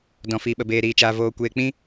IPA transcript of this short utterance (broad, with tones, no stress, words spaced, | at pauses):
dɔ̃˧fiː˧ɓə˧ beː˧ ɾiː˧t͡ʃaː˧voː˧ kʷeː˧k͡pĩ˦